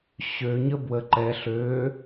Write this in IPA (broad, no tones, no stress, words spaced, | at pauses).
ɕøɲə bwə ǃɛɬ ø